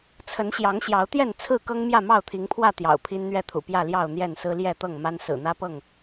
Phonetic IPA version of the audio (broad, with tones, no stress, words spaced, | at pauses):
t͡sʰə˨˦nɕjɑ˨˦ŋ ɕjɑ˨˦ʊ̯t̪jɛ˥˨n t͡sʰɹ̩˥˨kɤ˦ŋ mjä˥˨mɑ˥˨ʊ̯t̪ʰi˨˦ŋpʰwä˥˨ t̪jɑ̰˨˩ʊ̯pʰi˦nn̪ɥɛ˥˨t̪ʰṵ˨˩ pjä˥˨ljɑ˥˨ʊ̯n̪jɛ˥˨nsɹ̩˦ ljɛ˥˨t̪ɤ˥˨ŋma˦n sɹ̩˨˩n̪ä˦pɤ˥˨ŋ